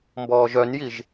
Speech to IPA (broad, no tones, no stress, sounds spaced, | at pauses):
m b ɔː ʒ œ n j i ʒ